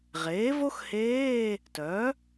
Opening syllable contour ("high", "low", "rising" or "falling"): rising